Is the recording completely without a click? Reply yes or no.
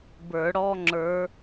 no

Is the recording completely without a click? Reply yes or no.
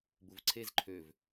no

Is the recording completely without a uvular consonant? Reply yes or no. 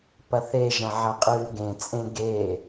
no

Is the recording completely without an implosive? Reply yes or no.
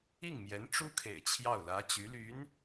yes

